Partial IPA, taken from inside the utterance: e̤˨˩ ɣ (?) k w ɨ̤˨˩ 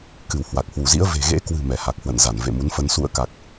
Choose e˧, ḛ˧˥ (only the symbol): ḛ˧˥